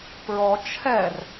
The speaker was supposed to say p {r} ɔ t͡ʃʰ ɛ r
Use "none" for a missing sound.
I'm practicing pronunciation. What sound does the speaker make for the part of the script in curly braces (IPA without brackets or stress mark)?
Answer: ɹ